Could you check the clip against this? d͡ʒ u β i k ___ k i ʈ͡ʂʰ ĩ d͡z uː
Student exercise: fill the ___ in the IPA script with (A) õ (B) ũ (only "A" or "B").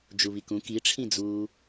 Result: B